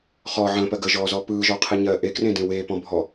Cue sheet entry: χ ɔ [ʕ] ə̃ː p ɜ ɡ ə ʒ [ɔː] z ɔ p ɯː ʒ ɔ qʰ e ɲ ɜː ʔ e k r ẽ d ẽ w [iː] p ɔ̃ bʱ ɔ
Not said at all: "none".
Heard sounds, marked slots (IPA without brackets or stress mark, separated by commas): ʕ, ɔː, eː